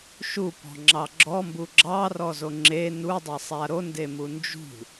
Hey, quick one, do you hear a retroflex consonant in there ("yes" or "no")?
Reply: no